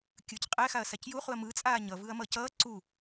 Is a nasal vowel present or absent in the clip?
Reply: absent